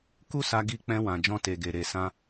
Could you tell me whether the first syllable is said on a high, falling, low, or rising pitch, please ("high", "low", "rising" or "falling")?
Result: high